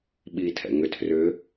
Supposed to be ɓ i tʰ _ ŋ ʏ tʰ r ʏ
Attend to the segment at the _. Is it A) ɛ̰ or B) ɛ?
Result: A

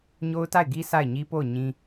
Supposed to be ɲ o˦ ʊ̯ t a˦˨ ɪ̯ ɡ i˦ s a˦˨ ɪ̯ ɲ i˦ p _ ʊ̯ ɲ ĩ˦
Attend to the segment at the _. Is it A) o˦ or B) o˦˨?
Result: B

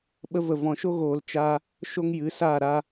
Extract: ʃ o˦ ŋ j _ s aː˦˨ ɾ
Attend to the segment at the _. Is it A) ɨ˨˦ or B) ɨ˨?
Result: A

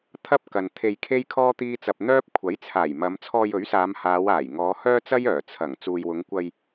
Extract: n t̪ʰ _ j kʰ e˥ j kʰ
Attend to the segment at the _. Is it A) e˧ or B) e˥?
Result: A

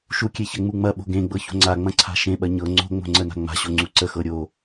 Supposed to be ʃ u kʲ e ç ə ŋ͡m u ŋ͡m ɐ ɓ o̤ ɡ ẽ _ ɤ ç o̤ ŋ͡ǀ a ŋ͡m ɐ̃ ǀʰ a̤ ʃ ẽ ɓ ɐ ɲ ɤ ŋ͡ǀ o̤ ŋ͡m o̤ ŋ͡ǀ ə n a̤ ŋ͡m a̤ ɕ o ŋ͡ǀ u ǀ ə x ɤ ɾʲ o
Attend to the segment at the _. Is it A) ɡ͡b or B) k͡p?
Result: A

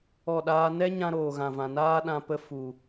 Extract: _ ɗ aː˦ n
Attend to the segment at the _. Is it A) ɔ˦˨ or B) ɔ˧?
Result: A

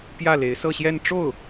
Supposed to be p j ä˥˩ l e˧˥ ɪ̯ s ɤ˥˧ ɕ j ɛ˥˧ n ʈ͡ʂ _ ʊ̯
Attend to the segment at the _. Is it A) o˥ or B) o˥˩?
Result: B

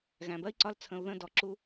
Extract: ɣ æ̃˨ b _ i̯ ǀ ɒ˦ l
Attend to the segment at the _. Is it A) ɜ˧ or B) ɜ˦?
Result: B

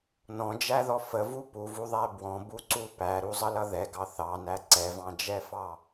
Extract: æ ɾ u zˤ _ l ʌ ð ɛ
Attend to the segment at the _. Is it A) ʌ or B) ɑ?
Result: A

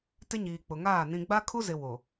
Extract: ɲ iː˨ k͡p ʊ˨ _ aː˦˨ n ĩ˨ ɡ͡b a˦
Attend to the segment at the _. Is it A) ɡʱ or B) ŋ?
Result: B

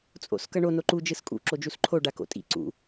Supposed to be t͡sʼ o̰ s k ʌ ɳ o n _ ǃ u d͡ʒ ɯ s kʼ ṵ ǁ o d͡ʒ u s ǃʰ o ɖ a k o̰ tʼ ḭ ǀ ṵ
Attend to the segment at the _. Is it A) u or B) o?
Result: B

